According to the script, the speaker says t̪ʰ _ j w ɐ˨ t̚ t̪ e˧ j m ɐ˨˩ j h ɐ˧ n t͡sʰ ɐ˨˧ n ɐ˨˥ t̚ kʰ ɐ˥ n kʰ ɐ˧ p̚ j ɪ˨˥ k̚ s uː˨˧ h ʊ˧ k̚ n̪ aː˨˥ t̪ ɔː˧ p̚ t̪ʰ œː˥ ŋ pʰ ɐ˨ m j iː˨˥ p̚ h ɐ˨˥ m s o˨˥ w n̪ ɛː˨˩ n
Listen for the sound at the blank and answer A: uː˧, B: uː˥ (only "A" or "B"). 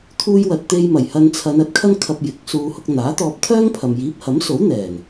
A